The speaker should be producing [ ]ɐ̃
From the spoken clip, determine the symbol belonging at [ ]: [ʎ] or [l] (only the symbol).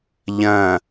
ʎ